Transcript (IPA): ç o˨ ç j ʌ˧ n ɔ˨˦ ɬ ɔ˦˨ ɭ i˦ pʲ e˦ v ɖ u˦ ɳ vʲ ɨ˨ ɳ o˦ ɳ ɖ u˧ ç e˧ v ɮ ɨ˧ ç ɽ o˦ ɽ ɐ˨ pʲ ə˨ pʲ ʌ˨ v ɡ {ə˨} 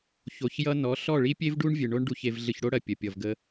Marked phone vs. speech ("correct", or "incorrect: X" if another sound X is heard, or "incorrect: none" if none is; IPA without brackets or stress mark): incorrect: ə˧